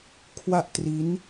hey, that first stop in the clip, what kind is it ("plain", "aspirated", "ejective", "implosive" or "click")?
aspirated